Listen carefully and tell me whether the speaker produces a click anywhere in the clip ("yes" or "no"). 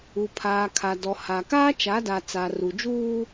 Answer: no